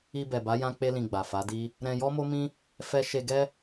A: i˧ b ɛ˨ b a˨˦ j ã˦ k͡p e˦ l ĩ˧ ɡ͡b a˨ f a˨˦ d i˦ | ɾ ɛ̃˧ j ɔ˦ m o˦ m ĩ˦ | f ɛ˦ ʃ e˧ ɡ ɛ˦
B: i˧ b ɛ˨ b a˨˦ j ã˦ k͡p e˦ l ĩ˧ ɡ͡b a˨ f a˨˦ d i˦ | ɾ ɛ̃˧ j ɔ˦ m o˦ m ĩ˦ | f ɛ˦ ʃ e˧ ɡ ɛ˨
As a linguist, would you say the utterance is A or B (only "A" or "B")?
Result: A